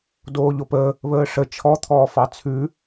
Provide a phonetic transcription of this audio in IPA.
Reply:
d oː ʎ o p ə | β əː ʂ ə t͡ʃʰ ɔ t̪ʰ ɔː f ɑ t͡sʰ ʉ

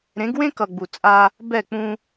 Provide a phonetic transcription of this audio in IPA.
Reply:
ɾ ẽ˨˦ ɡ w ẽ˦ k ʌ˨ ɡ͡b u˨ t͡sʼ a˦ | b ɛ˦˨ k͡p ũ˦

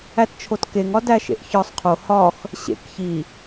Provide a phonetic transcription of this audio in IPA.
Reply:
æ t t͡ʃʰ o t k e ŋ ɒ d æ ʃ ḛ ʔ ç ɒ sˤ qʰ o h ɒ x | ɕ ḛ k ç i

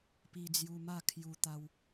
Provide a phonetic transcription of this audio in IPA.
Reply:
p i˧ d͡z j u˧ m a˥˧ kʰ j u˧ t̪ a˧ w

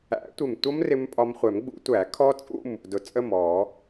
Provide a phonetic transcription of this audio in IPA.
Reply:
æ̰˨˩˦ tʷ ɪ˨˩ m tʷ ʌ˦˥ m r ɪ˧ m pʼ ɒ˧ m χʷ ɛ˨˩˦ m ɡ͡b ṵ˨˩˦ tʷ æ˨˩˦ kʰ ɔ˦˥ t͡sʼ ṵ˥˨ m | d ʊ˨˩ t͡sʼ ə˥˨ m ɔ˨˩˦

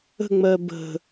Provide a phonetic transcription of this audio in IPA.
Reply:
ə̤ ŋ͡m ɜ b ə̤

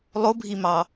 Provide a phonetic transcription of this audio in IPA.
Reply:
lˠ o bʱ i m ɑ

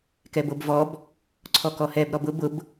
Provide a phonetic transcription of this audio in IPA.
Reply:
k ɛ b o b v ɔ b | ǀʰ ɔ k ɔ h ɛ b ɾ ɔ b ʊ b ʊ b

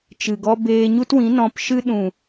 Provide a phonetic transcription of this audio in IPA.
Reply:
t͡ʃ ɨ˨ ɡ ɔ˧ b eː˧ ɲ u˦ t w ĩ˨˦ n ɔ̃˧ p ʃ ɨ˧ ɗ ũ˨

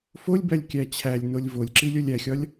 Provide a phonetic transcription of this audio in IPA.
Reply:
f o lʲ b æ lʲ kʲ æ t͡ɕʰ æ lʲ n o lʲ v o lʲ ǁ i lʲ o lʲ æ xʲ ɒ lʲ

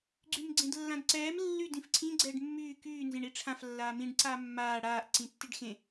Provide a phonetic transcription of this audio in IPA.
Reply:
ɡ͡ǀ y m ɡ͡ǀ ẽ d lː ã d ǀ ɛː m lː y d ĩ f ǀʰ ĩ ɡ͡ǀ ɛː ɖ mː yː k yː n z ẽ ɳ i ʈ͡ʂʰ ã f lː aː m ĩ ɖ ǀ aː mː aː ɽ aː ʔ ǀ ĩ tː i ɖ x ẽ

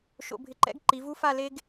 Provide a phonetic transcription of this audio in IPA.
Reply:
ʃ o̰˧ bʱ ɪ˧ ǃ ɛ̰˥ ɡ ǃ i˩˧ v u˥ f a˥˧ l e˥ ɡ

